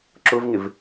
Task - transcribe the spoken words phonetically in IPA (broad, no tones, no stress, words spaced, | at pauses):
ǁʊvŋɪv